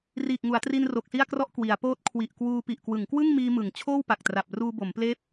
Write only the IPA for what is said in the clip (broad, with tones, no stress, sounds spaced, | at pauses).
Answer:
r iː˨˩ k̚ ŋ u˩˦ a̯ t r i˧ n r o˨˩ k̚ s i˥˩ a̯ k r ɔ˥˩ ʔ k w i˩˦ a̯ p oː˥˩ t̚ kʰ w i˨˩ ʔ k w uː˧ p i˨˩ ʔ k w ɯ˩˦ ŋ k w ɯ˥˩ ŋ m iː˧ m ɯ˩˦ ŋ t͡ɕʰ oː˥˩ w p a˨˩ k̚ t r a˨˩ p̚ r uː˧ b o˩˦ m p l eː˦˥ p̚